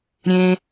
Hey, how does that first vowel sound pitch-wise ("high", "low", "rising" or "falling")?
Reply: high